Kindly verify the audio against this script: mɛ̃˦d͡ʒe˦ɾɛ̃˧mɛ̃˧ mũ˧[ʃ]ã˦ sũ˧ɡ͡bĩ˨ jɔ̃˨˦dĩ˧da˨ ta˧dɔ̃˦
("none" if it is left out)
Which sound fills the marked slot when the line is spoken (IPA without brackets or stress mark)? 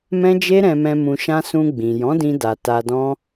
ʃ